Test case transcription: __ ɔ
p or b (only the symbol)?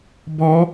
b